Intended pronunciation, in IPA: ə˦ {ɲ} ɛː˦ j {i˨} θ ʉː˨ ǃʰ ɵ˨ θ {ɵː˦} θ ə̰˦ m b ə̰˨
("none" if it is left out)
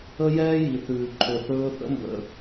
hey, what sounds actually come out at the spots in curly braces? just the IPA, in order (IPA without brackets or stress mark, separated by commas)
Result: j, i˨, ɵː˦